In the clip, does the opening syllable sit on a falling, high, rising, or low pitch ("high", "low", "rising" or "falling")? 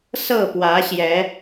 falling